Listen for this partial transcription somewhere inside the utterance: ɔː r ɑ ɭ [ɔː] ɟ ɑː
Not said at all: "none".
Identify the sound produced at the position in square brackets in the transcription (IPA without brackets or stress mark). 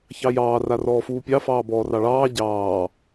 ɑː